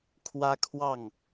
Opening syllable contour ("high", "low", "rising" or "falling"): high